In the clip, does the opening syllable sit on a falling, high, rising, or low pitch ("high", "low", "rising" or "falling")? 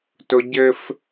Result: high